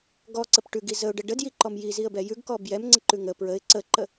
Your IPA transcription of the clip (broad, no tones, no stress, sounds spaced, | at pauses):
ɡ ɔ ǀ ə p ʈ ʉ ɡ i z ə ʊ̯ ɖ ə ɖ ə d j i ǃ ɔ m j i z i ə̯ b ɛ j ʉ ɡ k ɔ b j ɛ m ŋ͡ǀ ə ǃ ʉ ŋ ə p ɹ ə ɪ̯ ǀ ə ǃ ə